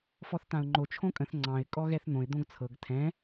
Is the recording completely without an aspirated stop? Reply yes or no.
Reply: no